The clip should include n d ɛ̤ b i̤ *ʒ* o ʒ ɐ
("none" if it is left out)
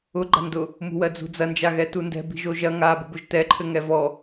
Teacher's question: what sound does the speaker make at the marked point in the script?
ʒ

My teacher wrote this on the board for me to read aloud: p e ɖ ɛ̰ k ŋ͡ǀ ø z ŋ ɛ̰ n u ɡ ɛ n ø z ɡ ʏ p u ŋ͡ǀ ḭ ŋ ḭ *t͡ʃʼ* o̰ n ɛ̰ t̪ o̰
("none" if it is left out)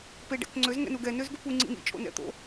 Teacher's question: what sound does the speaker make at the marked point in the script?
t͡ʃʼ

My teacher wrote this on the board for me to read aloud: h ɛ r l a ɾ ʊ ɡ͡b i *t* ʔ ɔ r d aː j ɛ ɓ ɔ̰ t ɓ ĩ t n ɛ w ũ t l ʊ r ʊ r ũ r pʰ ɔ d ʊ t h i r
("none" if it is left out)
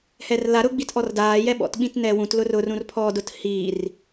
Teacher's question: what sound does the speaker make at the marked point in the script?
t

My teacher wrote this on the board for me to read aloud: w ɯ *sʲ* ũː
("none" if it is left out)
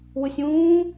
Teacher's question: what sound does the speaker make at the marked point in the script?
sʲ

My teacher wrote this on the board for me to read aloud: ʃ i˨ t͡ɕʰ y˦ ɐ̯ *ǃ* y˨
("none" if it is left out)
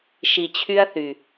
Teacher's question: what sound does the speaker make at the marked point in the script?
θ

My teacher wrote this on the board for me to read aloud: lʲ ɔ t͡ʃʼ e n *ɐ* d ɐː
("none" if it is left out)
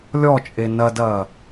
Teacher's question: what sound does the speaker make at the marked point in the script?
ɐ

